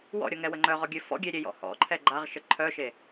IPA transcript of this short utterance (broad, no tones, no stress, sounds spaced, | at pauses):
w ɔ̰ ɾʲ ɔ ŋ ɛ w ə ŋ͡ǃ œ ʁ ɔ ɡʲ ø f ɔ̰ ɡʲ e ɾʲ e j ɔ̰ h ɔ̰ ǃʰ ɛ ɡ͡ǃ a ʁ ʃ ə ǃʰ œ ʃ e